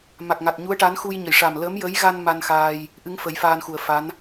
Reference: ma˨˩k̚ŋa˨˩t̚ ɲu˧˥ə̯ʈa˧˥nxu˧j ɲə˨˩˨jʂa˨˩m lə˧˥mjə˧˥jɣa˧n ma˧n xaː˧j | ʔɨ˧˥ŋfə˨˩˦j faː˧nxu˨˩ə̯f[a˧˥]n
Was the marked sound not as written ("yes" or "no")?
no